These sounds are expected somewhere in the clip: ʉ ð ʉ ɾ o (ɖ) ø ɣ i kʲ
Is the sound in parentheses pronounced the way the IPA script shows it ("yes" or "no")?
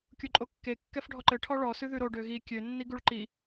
yes